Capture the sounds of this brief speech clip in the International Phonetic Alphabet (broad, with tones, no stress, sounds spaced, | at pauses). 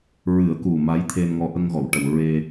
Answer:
ɹ ɨ˨˩˦ ə̯ k u˨˩ m a˧˥ j t̪ʰ e˧ n ŋ ɔ˧ ʔ ə˧ ŋ ɣ ɔ˨˩˨ w ʈ ə˨˩ w ɹ e˧